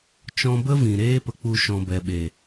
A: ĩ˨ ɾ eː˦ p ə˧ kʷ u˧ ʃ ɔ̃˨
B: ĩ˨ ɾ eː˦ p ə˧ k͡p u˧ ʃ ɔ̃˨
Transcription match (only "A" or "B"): B